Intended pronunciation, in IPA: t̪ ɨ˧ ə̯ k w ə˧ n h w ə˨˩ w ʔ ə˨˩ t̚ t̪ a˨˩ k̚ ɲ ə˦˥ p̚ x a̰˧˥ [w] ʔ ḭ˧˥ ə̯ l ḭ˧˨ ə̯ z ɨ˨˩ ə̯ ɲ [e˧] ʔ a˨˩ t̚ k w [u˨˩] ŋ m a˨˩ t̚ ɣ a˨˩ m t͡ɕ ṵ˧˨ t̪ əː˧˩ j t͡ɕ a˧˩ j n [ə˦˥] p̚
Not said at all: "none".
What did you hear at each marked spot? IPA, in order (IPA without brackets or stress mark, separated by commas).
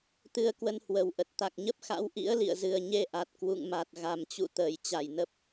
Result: w, e˧, ṵ˧˨, ə˨˩